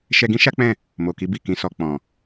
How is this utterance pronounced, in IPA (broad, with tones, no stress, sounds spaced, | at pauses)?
ʃ ɛ˧ ɡ ĩ˦ ʃ a˦ k͡p ɛ̃˦˨ | m o˨ k i˨˦ b i˦˨ k ĩ˨˦ s ɔ˧ k͡p ɔ̃˨